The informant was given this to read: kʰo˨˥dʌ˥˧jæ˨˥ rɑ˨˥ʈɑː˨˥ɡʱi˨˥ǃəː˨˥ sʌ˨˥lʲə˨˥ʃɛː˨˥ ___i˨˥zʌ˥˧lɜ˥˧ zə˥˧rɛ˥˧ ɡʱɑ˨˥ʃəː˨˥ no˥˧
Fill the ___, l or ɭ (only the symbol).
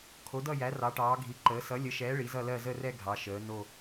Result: ɭ